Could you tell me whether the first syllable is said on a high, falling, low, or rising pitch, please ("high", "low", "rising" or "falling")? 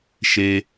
low